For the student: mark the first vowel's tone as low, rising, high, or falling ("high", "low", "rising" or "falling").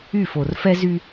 falling